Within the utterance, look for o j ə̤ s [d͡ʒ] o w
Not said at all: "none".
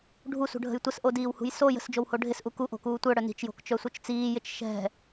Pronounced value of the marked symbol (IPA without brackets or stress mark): d͡ʒ